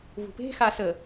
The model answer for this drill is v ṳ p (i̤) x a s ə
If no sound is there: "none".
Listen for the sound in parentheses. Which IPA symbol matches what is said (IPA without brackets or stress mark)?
e̤